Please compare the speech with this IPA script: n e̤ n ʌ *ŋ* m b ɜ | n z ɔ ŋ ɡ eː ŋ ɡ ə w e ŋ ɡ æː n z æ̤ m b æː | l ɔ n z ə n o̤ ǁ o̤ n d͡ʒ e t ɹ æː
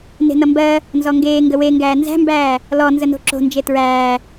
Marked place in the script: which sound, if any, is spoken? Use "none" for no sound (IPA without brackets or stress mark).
none